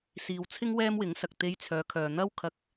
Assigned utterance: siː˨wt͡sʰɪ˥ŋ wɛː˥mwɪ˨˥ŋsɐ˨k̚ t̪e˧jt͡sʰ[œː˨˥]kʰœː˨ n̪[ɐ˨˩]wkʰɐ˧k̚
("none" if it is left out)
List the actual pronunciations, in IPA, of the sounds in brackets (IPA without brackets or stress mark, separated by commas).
œː˨˧, ɐ˥